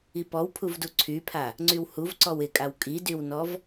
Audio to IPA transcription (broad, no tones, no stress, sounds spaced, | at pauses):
i p ɔ w pʰ u v d u ǀʰ y pʰ a | ŋ͡ǀ y w h u v ǀ ɔ w ɪ kʼ a w kʼ i d y w n ɔ v